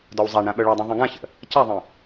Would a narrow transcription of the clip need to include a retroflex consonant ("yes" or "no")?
yes